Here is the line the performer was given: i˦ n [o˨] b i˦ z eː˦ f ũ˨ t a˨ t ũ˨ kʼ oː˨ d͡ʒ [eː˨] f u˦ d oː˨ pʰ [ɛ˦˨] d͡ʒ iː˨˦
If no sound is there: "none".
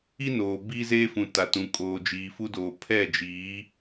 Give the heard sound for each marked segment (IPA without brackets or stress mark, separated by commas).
oː˨, iː˨, ɛ˦˨